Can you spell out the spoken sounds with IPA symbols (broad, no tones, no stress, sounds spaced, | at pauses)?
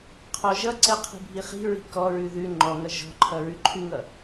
qʰ ɔ ʒ ʌ ǀ ɛ qʰ i̤ bʱ i χ i̤ ɹ i̤ k ɔ ɹ ʉ ð ʉ ŋ͡ǃ ɔ ŋ ʌ ʒ ɔ̤ ǃʰ ʌ ɹ ʉ ǃʰ ʉ ŋ ʌ